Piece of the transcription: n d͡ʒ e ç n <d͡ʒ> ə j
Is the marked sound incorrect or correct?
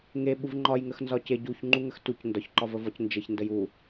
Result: incorrect